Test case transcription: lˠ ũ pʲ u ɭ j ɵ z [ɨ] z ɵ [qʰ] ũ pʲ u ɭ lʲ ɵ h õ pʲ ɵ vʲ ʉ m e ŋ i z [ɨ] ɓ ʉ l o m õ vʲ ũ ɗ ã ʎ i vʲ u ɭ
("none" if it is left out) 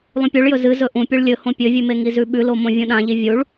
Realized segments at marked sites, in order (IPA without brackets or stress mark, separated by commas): ɨ, ʔ, ʉ